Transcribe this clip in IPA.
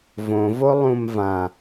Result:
v õ v o lˠ ũ m v ã

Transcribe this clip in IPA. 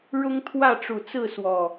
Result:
ɻ ʊ˦ ŋ t̪ʰ w ä˥˨ ʈ͡ʂ u˨˩ t͡s ɹ̩˥˨ s w ɔ˨˩

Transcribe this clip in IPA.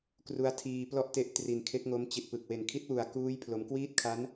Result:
k r u˦˥ a̯ tʰ iː˧ p l ɔ˥˩ ʔ t e˦˥ ʔ t r i˨˩ n kʰ e˦˥ k̚ ŋ o˦˥ m t͡ɕ i˨˩ t̚ p ɯ˨˩ k̚ w e˨˩ n kʰ i˦˥ t̚ w u˨˩ a̯ k uː˦˥ j pʰ l o˩˦ m k w iː˥˩ t̚ kʰ a˦˥ n

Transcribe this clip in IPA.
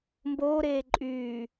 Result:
m b oː ɾ eː ǃʼ yː

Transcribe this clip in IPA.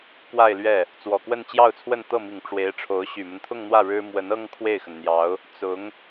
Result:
k w a˥˧ ɪ̯ l ɥ ɛ˥˩ | t͡s w ɔ˨˩ k w ə˥˧ n t͡ɕ j ɑ˥˧ ʊ̯ t͡sʰ w ə˥˧ n t̪ ɤ˥˩ m i˨˩ ŋ ʈ͡ʂ w e˧˥ ɪ̯ ʈ͡ʂʰ o˧˥ ʊ̯ ɕ y˨˩ m ə˦ n t̪ʰ ʊ˥˧ ŋ n̪ w ä˥˩ ɻ ɻ̩˥ m w ə˧˥ n ɤ˥ ŋ kʰ w e˥˩ ɪ̯ x ə˩ n n̪ j ɑ˧˥ ʊ̯ | t͡s ʊ˧˥ ŋ

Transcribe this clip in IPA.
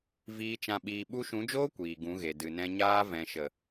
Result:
v iː˨ t͡ʃ ã˨ ɓ iː˨ ɓ u˧ ʃ ũ˨˦ d͡ʒ oː˦ kʷ iː˨ ɡ ũ˨˦ ɣ e˨ d ɨ˨ n ɛ̃˧ ɲ aː˧ v ɛ̃˨ ʃ ə˨

